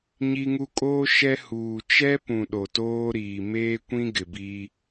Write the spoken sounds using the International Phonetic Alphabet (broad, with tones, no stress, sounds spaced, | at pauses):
ɲ i˦ ŋ u˦ kʼ oː˦ ʃ ɛ˦ h uː˨ t͡ʃ ɛ˦ p ũ˨ ɗ o˨ t oː˦ ɾ iː˨ m eː˦ kʷ ĩ˦ ɡ ɪ˨ b i˦